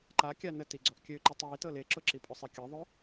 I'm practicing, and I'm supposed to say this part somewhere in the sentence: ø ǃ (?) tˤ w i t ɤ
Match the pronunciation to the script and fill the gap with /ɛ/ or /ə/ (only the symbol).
ɛ